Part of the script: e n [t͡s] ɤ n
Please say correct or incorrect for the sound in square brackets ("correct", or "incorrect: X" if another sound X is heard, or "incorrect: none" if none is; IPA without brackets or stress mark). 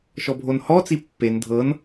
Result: incorrect: dʱ